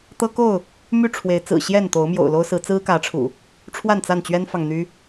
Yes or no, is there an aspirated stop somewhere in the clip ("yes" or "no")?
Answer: yes